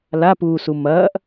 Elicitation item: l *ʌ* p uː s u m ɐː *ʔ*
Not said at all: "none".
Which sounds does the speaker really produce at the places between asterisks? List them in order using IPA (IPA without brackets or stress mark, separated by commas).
a, ʔ